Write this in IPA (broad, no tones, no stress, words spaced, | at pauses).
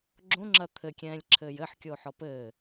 ɡ͡ǁõŋ͡ǁɐ t̪ʰɘkʲɛ̃ːlʲǁʰɘːj ɘħkʲo ħɔpɘː